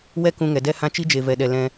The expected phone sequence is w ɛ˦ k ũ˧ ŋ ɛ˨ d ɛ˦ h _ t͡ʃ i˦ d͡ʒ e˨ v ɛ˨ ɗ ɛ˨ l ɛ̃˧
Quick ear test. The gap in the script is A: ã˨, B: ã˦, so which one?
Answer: B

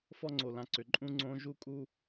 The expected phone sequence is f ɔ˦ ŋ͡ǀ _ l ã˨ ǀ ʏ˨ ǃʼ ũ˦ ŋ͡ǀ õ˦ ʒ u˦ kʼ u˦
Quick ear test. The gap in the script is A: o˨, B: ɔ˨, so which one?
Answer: A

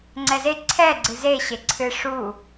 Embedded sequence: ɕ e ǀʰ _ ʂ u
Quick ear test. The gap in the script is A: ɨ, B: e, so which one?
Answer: A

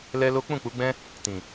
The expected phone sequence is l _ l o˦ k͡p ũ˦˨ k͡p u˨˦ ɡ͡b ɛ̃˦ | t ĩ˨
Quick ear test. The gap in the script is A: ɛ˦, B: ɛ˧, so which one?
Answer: A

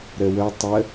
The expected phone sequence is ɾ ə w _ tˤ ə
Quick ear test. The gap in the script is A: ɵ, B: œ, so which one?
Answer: B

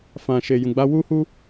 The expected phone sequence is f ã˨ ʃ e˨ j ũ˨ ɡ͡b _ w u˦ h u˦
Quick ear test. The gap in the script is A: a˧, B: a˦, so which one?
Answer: A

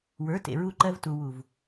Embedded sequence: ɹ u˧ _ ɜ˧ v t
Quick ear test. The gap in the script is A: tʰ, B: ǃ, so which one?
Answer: B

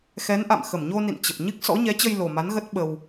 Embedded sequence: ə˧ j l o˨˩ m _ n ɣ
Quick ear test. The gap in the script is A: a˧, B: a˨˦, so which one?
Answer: B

